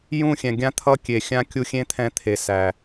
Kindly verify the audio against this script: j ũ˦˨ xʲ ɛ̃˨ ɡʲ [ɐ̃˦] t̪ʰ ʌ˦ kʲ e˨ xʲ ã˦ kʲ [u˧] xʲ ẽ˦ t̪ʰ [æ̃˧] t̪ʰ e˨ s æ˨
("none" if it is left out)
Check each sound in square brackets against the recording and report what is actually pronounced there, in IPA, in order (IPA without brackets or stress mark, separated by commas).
ã˦, u˧, ɛ̃˧